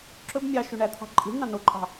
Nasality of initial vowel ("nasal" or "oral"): oral